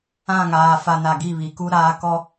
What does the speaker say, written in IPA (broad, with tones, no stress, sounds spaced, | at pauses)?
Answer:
ã˦˨ ŋ aː˨ f a˨ n a˨ ɡ i˦˨ β i˨ k u˦ ɾ aː˦ k ɔ˦